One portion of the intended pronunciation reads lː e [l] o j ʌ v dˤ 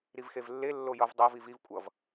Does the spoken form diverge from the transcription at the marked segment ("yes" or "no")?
yes